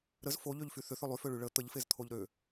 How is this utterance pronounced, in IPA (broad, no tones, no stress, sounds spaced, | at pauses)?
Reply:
ɾ ə z f o ʎ ø ʎ f y θ ʏ θ ʏ lˠ y f ø ɭ y ɭ ə t̪ ə ʎ f e z t̪ʰ o ʎ ɾ ø